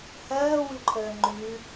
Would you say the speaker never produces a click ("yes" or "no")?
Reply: no